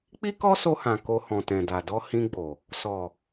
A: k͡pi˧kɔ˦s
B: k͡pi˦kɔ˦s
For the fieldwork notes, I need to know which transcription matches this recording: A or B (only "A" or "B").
B